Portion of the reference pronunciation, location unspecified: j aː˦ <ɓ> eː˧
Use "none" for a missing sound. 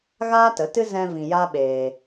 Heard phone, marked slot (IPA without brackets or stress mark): ɓ